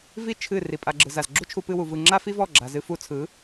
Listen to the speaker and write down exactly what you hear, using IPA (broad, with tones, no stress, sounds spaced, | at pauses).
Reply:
v i˦ t͡ʃʰ ɨ˦˨ r i˨ pʼ a˧ ɡ͡ǁ ɯ˨ z a˨ z ɡ͡ǁ u˦ t͡ʃʰ u˧ p ɨ˧ w u˨ v ɯ˧ ŋ͡ǁ a˦ f i˦ v ɔ˦˨ ɡ͡ǁ a˨ z ɨ˧ f u˧ t͡sʰ ɯ˨˦